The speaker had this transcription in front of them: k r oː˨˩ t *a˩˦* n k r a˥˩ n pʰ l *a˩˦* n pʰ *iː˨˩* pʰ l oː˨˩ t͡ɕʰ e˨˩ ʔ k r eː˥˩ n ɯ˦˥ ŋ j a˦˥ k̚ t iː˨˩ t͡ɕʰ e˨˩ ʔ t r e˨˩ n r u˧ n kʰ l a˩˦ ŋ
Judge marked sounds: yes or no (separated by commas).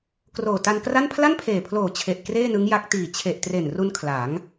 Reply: no, no, no